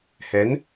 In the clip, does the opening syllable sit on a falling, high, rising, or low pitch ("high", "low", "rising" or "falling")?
rising